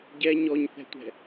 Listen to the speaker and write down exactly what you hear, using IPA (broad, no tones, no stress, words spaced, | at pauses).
ɟɛ ɲɔɲθɛ̤tʷɛ̤